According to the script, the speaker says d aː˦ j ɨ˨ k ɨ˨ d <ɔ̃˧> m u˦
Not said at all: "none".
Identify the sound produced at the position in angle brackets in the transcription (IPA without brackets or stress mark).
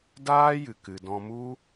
ɔ̃˧